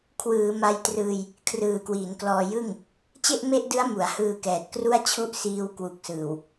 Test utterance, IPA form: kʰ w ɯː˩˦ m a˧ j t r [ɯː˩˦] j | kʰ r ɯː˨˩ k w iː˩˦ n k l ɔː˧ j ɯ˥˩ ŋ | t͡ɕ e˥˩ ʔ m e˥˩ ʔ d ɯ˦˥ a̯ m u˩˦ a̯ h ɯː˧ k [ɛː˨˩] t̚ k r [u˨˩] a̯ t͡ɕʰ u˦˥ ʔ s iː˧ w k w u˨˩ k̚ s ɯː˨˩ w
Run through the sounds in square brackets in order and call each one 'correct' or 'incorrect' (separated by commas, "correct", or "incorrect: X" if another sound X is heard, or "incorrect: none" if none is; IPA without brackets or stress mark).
incorrect: ɯː˧, correct, incorrect: u˥˩